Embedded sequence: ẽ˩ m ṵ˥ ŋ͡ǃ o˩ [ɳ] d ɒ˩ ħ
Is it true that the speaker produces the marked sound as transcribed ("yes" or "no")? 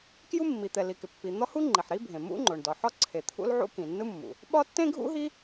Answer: yes